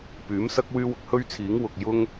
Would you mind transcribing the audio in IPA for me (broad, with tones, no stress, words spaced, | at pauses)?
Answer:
pyː˨˥msɐ˥k̚ wyː˥wʊ˧k̚ hɵ˥ɥt͡sʰiː˨˥ŋ wʊ˨k̚jʊ˥ŋ